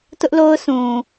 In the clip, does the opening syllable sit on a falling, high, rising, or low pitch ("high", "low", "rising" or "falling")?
high